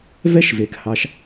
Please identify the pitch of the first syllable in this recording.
high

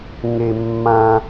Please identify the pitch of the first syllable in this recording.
low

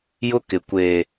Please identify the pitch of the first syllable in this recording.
high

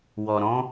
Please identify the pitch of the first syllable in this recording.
low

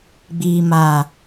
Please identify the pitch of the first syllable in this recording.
low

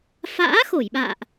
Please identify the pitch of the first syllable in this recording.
rising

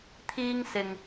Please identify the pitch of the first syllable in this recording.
high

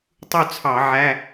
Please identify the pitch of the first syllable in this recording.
falling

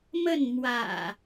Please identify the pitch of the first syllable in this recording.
falling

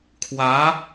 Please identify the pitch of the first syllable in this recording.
rising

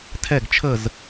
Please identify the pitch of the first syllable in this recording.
falling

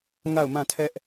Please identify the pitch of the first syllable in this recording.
falling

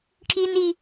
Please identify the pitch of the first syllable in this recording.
high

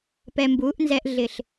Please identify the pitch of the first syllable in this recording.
low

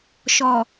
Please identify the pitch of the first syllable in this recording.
low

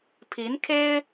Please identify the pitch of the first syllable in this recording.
rising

